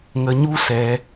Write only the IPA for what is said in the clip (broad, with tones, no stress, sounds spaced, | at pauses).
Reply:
ŋ ə˧ ɲ u˦ s ɛ˧